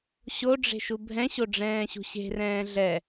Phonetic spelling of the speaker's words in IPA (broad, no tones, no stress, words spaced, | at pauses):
ɕoɖ͡ʐe̤ʃu bʱɛ̃ɕoɖ͡ʐɛ̃ːɕṳ ɕe̤rɛ̃ː ɮɛ